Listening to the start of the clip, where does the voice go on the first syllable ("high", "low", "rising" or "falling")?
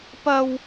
high